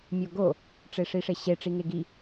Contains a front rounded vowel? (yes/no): no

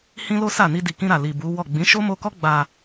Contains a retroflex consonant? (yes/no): no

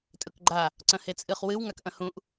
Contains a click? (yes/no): yes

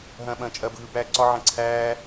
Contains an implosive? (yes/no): yes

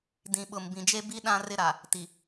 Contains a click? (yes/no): no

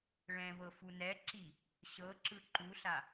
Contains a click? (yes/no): yes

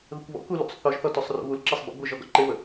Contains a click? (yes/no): yes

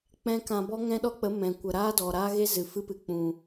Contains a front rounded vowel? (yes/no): no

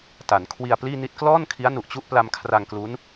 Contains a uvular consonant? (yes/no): no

